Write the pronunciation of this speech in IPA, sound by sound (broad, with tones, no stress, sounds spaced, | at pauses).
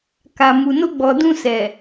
k a˨ m u˨ n o˧ ɡ͡b ɔ˨ d ũ˧ s ɛ˨